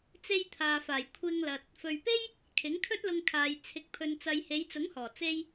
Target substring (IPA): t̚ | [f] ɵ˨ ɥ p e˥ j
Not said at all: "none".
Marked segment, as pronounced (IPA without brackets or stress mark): f